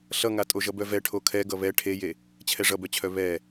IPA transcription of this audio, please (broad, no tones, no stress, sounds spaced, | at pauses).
ɬ ʌ ŋ a tʼ o ʒ ʌ b œ v ɛ ʈʰ o kʰ ɛ ɡ ʌ β ɛ ʈʰ e j e | t͡ɕʰ ɛ ʐ ʌ b œ t͡ɕʰ œ β ɛ